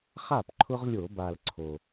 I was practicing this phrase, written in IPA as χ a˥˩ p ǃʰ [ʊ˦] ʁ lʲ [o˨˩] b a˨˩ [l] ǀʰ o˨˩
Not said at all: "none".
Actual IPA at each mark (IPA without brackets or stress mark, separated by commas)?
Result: ʊ˦, o˧˩˧, l